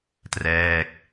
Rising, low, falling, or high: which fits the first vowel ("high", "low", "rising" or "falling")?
falling